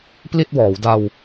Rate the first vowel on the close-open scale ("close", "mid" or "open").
close